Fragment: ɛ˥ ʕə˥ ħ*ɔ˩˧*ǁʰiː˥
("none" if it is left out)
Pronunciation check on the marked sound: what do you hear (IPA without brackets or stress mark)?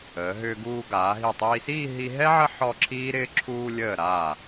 ɔ˥˧